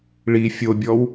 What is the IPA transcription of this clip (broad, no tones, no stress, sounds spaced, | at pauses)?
ɭ i fʲ o bʲ ɔ w